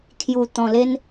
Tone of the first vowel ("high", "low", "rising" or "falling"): low